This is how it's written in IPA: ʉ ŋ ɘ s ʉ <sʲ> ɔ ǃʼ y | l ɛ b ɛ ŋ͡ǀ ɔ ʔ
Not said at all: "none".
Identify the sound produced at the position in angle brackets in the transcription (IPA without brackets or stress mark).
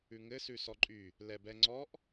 s